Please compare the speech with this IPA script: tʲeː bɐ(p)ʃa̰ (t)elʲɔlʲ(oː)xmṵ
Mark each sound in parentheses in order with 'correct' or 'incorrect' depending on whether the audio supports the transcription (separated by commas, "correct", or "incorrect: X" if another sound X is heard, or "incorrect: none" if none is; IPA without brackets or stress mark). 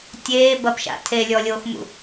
correct, incorrect: tʰ, correct